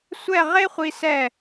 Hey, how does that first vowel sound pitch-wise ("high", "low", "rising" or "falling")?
falling